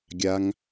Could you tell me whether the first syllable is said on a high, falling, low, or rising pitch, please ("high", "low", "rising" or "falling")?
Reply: high